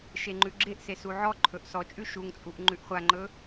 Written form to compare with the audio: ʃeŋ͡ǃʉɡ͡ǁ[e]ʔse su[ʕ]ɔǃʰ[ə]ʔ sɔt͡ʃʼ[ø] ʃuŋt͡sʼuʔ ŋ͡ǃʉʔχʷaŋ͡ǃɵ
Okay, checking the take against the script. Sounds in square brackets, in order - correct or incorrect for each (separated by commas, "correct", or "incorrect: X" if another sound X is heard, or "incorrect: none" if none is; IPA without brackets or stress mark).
correct, correct, incorrect: ɵ, incorrect: ʉ